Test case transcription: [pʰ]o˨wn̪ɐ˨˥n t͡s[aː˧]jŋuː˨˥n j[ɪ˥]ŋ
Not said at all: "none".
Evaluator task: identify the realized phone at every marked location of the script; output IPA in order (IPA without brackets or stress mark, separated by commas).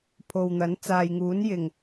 pʰ, aː˨, ɪ˨˩